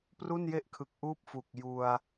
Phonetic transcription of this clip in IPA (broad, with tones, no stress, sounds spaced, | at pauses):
p r u˥˩ n j e˥˩ ʔ kʰ ɯ˨˩ k̚ ʔ uː˥˩ p̚ f u˨˩ k̚ j u˧ a̯